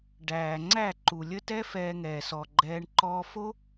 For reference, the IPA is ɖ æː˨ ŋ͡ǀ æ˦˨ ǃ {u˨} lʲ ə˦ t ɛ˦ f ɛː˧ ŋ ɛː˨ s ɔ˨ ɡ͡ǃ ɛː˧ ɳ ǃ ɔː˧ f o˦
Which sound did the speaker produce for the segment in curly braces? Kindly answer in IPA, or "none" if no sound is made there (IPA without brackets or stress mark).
u˨